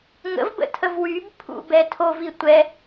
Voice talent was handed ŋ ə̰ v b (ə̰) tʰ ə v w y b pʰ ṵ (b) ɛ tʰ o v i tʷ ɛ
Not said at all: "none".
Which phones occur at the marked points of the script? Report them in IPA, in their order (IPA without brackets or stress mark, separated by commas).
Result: ə̰, b